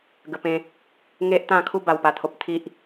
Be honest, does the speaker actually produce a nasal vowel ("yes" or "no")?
yes